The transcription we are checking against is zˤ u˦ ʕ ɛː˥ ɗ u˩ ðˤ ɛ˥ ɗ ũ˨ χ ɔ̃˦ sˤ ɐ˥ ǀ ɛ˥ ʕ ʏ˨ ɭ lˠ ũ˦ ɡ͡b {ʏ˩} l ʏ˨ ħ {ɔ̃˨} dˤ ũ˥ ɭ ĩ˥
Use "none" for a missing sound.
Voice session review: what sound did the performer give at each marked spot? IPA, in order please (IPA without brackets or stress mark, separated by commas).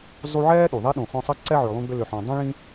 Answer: ʏ˦, ɔ̃˨